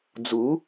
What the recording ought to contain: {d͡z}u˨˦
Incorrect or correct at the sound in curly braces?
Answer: correct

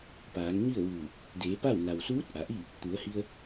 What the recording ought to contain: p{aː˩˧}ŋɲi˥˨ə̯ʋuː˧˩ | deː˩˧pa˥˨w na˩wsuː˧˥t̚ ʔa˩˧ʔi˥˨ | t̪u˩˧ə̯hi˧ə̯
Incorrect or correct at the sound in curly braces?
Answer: correct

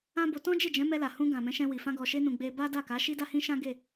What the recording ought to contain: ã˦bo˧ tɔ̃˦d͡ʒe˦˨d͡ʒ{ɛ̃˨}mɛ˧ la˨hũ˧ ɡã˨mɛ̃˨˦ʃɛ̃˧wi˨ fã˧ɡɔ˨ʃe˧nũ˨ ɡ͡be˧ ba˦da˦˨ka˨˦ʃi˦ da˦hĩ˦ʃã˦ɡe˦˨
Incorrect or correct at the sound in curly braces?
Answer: incorrect: ɛ̃˨˦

